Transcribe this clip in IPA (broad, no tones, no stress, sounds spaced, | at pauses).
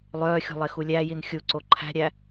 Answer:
lˠ œː xʲ ṳ lˠ e x u lʲ æ j i n xʲ u ǀ o ǃʰ æ̤ ɾʲ æ